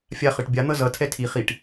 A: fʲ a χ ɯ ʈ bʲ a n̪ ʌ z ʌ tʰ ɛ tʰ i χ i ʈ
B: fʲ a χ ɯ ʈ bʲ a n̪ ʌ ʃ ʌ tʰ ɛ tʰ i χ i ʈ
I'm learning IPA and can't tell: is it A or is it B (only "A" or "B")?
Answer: A